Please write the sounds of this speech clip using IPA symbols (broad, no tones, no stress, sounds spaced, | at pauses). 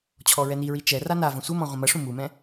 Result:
t͡ɕʰ ɔ ɹ ɛ n i ɹ i t͡ʃ ɛ r a n a v ɐ̃ sʷ ɘ m ɔ̃ ʁʷ ɐ̃ m ɐ ʂ ũ m u m ɛ̃